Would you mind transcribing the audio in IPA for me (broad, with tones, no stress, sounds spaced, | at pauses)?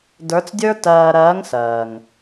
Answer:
d ə˞˧˥ t͡s dʲ ə˞˥ t ɜː˧ ɾ ɜː˧˥ ŋ s ɜː˩ ŋ